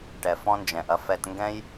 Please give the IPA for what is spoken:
ʈ ɛ˨ f ɔ̃˦ n d͡ʒ ɛ̃˨ ʔ ɐ˦ f ɛ˧ t ŋ ɡ ɛ̃˦ j

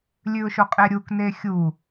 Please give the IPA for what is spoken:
lʲ ʉ ʊ̯ ʃ o qʼ e ɾʲ u k n e xʲ u

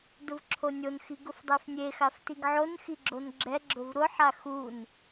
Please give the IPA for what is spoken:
d ʊ v ǁʰ o nʲ o n x i ɡ ʊ f dˤ e f nʲ e x a f t i ɡ ʕ o n x i ɡ͡ǁ o n ɡ͡ǁ ɛ ɡ͡ǁ ʊ v ɾ ʊ ħ a x u n

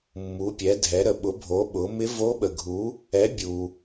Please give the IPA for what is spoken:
mː u˩˥ pʲ ɛ˩˥ dʱ ɛ˩˥ ɾ ə˩ ɓ ʊ˩˥ bʱ o˩˥ ɓ ʊ˩˥ m ɪ˧˥ v o˧˥ ɓ ə˩ ɡʱ u˩˥ | ɛ˩˥ bʲ u˩

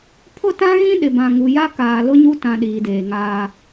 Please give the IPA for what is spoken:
pʰ ʊ˦ t ã˦ ɣ ĩ˦ ɗ ɪ˨ b ã˨ ŋ u˨ j a˦ k aː˨ l ʊ˦ ɲ u˦ t ã˨ ɗ iː˨ d eː˨ ŋ aː˦

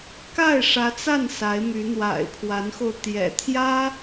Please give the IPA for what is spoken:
k a˥˩ ɪ̯ ʂ ä˧˥ t͡s a˥˩ n s a˧˥ ɪ̯ m y˧˥ n̪ w a̰˨˩ ɪ̯ pʰ w a˧˥ n x o˧ ʊ̯ t̪ j ɛ̰˨˩ t̪ʰ j ä˥

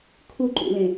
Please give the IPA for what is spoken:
kʰ u ǃ ṵ l ẽ

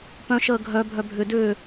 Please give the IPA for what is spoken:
p œ̃ ʃ əː ɡʱ œ bʱ œ bʱ ʏ d ʏː

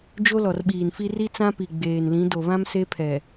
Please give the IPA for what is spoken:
d͡ʒ o˦ l ɔ˨ r ɓ iː˨ n f i˦ r i˦ t͡s ã˦ p i˨ ɡ͡b eː˨ n l ĩ˨˦ d o˨ β ã˦ m s e˦ pʰ ɛ˨

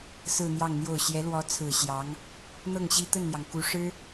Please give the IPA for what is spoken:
s ɹ̩˥˧ n̪ j ɑ˥˧ ŋ n̪ j o˥˩ ʊ̯ ɕ j ɛ˧˥ l w ɔ˧˥ t͡sʰ ɹ̩˨˩ ɕ j ɑ˧˥ ŋ | n̪ ɤ˥˩ ŋ ɕ i˥ t̪ ə˥˩ n n̪ j ɑ˩ ŋ k u˧˥ ʂ ɻ̩˥

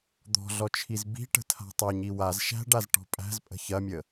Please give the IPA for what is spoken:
d̪ ɔ̤ ɮ ɔ t͡ʃʰ i z b i̤ ʈ ə̤ tʰ a̤ tˤ æ ɲ i w a z ʃ æ̤ ɖ a z ʈ ɔ̤ pʼ æ̤ z pʼ ə̤ ç ɐ mʲ ə

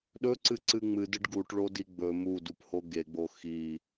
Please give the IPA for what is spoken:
ɗ ɵ ǀ ɨ ǀ ɨ ŋ͡m ɨ d ɨ ɖ ɡ u ʈ ɭ o d i ɡ͡b ɵ m u d u p h o ɡ e ɡ͡b o x i

